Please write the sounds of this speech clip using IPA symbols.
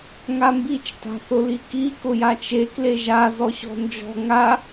ŋambit͡ʃ ta̤θʊliki kʊjat͡ʃe kleʒa zɔɕɔ̤nd͡ʒɔ̤ ŋa

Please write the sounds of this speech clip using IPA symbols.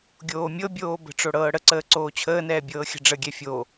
ɡʲoːmʲɤbʲoː bə̤ʈ͡ʂoɽɤː ɽəǀəː ǀoːt͡ɕʰəːnɛː bʲɤːxʲə̤ɖ͡ʐəɡʲɛ fʲo

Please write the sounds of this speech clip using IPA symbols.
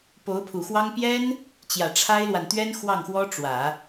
po˧˥ʊ̯pʰu˨˩xwɑ˥ŋ pjɛ˥n | t͡ɕjä˨˩ʈ͡ʂʰa˥ɪ̯lwa˨n t̪ɥɛ˥n xwɑ˥˩ŋxwɔ˥ ʈ͡ʂwä˨˩˦

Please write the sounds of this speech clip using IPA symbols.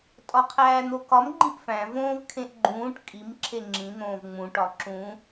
tʼɒqʰæːn̪okɒm ɡ͡ǃĩʔfæ̃ võːvkʰẽʔɡ͡ǃũːʈ kʼim ǁʰeŋ͡ǁĩ n̪õːvŋ͡mũ ʈɒǁũ

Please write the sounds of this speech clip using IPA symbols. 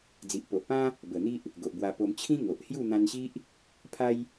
d͡zi˨ʔpo˨ʔpã˦ | bə˨˩n̪i˦ʔ | ɡo˨ʔbwa˧po˧m t͡ɕʰĩ˦ ŋo˨ʔ hju˥˧n̪ã˧nɕi˦ʔ | pʰa˦j

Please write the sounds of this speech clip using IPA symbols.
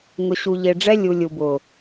ŋʊ˨ɕu˨ʎe˨ɖ͡ʐɛ˦ lʲu˨lʲu˨bʊ˨

